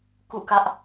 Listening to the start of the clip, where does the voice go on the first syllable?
falling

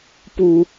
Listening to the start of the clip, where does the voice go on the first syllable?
low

